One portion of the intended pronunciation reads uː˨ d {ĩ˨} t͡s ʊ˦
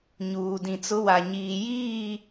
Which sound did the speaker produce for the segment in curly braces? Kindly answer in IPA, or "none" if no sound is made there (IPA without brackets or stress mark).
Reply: ĩ˨